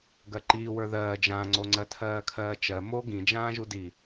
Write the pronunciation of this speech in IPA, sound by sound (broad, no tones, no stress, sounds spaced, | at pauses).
ɡ ɜ ǃ iː w ə˞ ð ɜː d͡ʒ ã ŋ͡ǀ o ŋ͡ǀ ɜ tʰ ɜː kʰ ɜː t͡ʃ ɜ m o ɡ ĩ d͡ʒ ãː ʒ u d i